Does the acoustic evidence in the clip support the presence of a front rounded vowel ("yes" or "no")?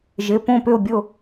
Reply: yes